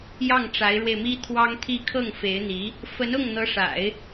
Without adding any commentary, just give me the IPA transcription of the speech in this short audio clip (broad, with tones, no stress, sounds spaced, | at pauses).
j ɑ˥˩ ŋ ʈ͡ʂ a˧˥ ɪ̯ ɻ w e˧ ɪ̯ m i˥ t̪ʰ w ɑ˥ ŋ t̪ʰ i˥˧ kʰ ɤ˥˩ ŋ f e˧˥ ɪ̯ n̪ i˧˥ | f ə˧˥ n ʊ˥˩ ŋ n̪ ɤ˧˥ ʂ a̰˨˩˦ ɪ̯